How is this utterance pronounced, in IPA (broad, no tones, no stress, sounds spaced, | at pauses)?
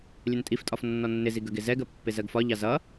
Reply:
lʲ ə n tʼ i f tʼ ɒ f nː ɔ nː ɪ z i ɡ ə ɡ ɪ z ɛ ɡ ɜ pː ɪ z ɜ ɡ f ɒ ʎ ɑ z ʌ